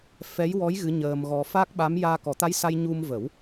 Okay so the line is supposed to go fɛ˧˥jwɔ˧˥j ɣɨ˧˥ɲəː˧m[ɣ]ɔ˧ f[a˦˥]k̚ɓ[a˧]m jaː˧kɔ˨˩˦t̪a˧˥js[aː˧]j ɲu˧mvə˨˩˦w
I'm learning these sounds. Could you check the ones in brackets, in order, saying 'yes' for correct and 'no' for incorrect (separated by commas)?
yes, yes, no, no